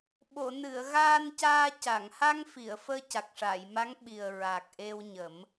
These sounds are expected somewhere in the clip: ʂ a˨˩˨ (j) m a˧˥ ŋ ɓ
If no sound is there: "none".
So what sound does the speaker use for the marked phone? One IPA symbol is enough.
j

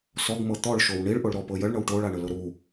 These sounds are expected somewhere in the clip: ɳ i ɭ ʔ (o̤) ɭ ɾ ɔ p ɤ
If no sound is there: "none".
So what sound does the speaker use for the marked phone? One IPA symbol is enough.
o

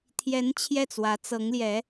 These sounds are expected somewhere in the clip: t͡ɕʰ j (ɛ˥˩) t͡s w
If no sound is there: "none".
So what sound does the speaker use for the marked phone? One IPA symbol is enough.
ɛ˥˩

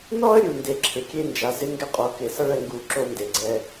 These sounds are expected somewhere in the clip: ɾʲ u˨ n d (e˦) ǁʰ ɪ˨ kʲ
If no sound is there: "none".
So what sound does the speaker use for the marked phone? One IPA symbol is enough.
e˨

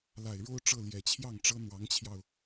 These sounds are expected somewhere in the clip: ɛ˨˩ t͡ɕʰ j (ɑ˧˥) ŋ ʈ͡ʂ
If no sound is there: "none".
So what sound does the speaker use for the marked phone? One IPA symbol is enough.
ɑ˥˩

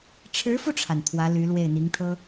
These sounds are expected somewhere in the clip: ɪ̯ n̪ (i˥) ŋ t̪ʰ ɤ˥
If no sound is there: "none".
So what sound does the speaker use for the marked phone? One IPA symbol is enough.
i˧˥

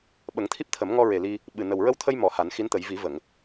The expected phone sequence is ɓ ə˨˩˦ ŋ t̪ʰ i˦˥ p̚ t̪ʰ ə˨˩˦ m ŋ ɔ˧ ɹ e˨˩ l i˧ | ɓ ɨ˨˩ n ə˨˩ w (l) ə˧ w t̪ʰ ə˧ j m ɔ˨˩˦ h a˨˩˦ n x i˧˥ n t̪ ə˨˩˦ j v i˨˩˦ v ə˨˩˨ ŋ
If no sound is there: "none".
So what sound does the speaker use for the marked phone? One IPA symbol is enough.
ɹ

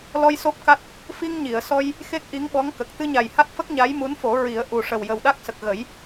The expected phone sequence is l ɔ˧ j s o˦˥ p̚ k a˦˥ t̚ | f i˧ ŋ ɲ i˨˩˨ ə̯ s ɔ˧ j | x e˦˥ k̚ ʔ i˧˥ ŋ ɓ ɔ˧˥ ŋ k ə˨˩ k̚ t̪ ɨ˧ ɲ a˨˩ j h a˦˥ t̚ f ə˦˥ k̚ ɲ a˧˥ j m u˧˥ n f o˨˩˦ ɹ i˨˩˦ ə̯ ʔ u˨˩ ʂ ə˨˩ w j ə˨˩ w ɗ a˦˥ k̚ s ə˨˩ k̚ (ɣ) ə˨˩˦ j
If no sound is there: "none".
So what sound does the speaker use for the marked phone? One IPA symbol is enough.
ɣ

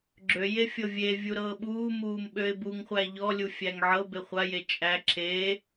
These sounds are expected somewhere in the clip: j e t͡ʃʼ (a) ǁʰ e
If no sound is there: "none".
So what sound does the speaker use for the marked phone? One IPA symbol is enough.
æ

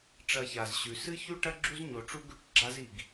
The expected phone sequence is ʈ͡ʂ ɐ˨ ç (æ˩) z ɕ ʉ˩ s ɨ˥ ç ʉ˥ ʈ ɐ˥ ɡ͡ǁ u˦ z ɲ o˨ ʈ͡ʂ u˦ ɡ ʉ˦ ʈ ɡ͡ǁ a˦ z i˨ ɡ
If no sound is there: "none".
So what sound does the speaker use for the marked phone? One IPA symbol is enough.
a˩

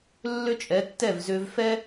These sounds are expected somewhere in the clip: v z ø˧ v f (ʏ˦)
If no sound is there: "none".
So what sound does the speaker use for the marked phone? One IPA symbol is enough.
ɛ˦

